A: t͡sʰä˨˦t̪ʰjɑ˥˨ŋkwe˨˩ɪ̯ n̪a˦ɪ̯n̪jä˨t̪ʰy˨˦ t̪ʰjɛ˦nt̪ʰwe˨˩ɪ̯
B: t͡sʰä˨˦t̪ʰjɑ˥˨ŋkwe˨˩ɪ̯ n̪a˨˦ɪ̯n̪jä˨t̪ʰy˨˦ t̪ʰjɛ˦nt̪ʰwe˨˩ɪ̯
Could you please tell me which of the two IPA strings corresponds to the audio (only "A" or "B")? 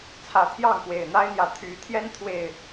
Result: A